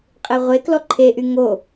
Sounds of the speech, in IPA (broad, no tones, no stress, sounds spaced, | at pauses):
qʼ e ʁʷ e k l ɔ ǃʰ e ʔ y ŋ o